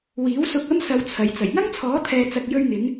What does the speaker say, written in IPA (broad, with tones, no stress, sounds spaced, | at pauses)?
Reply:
w iː˨˥ w s ʊ˧ k̚ ɐ˥ m s ɐ˧ w t͡sʰ ɐ˨˧ j t͡s ɐ˨˩ j ŋ ɐ˥ ŋ t͡sʰ ɔː˨˥ t̪ʰ ɛː˧ t͡s ɐ˧ k̚ j ɵ˧ ɥ ŋ ɪ˨˧ ŋ